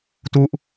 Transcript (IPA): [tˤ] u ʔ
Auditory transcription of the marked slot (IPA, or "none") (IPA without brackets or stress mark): t